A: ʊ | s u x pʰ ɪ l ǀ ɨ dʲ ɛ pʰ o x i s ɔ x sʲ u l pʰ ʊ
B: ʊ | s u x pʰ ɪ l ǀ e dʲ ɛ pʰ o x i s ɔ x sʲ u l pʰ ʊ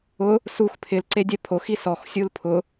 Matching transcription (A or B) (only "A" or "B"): B